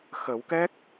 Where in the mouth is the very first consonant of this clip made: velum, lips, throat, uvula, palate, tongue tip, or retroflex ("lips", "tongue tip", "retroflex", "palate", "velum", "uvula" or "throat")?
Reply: velum